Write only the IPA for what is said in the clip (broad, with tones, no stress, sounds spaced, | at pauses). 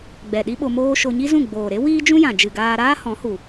ɡ͡b ɛ˨ ɗ i˦ ɓ o˧ m oː˦ ʃ o˧ ɲ i˦ z ũ˦˨ ɡ͡b oː˨ ɾ e˦ w iː˦ d͡ʒ ũ˦ j ã˨ d͡ʒ ɨ˨ ɡ aː˧ ɾ aː˦ h ɔ̃˨˦ h u˨